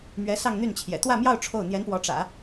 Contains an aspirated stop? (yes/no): yes